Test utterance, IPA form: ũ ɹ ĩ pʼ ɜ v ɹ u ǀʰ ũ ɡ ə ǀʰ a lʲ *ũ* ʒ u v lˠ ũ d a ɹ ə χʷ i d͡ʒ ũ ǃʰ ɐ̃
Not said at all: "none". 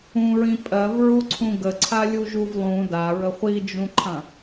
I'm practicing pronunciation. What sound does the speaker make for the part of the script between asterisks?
u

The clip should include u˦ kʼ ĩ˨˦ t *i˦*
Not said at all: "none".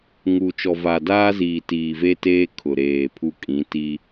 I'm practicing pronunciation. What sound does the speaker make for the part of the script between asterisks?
i˦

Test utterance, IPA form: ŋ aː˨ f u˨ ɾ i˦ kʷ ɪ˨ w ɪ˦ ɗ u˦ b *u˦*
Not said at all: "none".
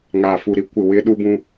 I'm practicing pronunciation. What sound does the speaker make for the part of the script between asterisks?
ũ˦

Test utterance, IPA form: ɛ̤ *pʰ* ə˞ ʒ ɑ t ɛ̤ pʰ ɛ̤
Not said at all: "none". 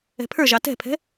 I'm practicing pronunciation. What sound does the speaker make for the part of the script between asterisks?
pʰ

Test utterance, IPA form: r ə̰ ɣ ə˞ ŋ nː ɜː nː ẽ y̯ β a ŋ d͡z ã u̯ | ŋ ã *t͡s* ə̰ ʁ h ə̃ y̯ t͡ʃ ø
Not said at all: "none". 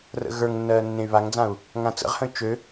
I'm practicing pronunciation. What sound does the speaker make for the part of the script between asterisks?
t͡s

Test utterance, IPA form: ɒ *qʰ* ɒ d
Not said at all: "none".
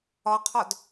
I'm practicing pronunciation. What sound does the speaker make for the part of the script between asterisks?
qʰ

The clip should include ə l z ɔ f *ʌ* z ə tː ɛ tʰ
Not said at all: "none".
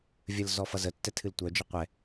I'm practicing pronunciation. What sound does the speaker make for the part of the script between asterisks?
ʌ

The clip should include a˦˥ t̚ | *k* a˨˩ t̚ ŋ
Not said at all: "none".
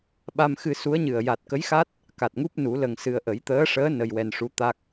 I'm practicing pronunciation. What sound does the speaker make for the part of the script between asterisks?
k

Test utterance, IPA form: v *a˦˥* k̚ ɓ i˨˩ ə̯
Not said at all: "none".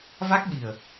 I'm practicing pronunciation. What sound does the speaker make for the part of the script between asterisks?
a˦˥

